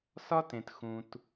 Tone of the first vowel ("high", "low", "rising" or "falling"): high